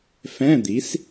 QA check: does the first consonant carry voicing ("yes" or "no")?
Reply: no